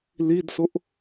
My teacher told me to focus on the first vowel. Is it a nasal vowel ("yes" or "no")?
no